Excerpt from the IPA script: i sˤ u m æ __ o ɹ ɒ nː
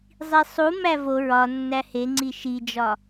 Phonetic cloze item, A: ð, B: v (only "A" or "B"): B